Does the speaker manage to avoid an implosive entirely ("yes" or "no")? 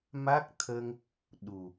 no